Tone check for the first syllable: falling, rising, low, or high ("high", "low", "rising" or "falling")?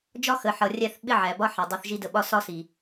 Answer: high